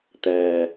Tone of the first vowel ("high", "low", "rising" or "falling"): low